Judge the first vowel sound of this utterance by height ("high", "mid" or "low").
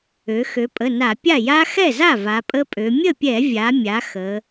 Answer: mid